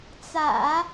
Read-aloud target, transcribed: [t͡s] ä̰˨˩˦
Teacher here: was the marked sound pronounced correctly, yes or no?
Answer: yes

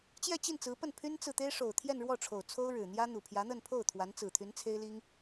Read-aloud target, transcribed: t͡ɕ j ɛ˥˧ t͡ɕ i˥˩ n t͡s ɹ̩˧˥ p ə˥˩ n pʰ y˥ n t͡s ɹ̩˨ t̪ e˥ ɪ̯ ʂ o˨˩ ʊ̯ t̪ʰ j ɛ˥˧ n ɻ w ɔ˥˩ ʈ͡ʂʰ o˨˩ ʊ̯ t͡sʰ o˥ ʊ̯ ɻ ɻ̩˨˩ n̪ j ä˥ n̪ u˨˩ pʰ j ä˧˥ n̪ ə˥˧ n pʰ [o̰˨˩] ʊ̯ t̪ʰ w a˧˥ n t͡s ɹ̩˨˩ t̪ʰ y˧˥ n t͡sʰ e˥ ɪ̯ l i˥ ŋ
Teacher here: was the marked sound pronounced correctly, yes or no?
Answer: no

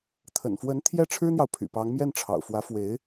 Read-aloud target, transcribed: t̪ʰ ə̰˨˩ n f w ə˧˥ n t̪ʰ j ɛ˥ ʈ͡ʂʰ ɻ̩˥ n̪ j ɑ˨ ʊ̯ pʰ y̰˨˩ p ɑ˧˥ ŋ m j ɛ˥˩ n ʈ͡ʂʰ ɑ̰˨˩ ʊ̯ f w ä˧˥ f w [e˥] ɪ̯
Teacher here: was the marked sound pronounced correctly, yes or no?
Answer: no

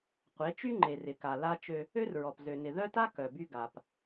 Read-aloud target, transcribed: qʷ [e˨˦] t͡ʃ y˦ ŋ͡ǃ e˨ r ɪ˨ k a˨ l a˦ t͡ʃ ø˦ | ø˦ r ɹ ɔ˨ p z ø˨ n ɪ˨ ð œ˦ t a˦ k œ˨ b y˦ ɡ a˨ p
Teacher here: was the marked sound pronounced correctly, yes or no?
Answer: yes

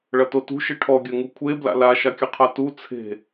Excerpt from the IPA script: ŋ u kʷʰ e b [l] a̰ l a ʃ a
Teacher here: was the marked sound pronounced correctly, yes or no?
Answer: yes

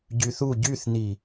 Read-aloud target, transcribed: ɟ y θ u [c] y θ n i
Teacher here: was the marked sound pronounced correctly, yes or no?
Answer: no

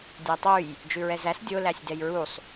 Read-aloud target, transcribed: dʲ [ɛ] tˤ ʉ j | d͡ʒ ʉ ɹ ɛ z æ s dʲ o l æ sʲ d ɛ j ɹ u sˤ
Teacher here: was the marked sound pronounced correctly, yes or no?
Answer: no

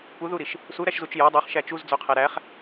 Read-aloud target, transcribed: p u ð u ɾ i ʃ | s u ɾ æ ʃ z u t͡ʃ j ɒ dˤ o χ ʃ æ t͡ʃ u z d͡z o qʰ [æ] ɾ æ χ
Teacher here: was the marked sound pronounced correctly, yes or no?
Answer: yes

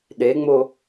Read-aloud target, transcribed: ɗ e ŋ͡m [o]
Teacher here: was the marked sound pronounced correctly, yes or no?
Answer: yes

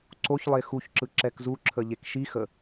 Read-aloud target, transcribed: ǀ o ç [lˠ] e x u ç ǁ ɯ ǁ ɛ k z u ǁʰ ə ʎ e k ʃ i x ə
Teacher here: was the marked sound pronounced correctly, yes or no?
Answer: yes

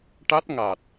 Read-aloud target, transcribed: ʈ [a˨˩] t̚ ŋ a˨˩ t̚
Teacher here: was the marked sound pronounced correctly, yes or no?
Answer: no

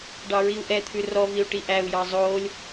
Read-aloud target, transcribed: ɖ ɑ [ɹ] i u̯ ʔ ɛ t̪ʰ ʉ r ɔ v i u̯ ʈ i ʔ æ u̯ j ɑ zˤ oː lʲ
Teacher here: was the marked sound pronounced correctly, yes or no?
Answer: yes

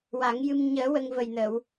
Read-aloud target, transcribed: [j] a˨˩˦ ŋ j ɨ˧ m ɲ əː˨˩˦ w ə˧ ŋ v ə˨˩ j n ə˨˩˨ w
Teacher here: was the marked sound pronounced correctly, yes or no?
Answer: no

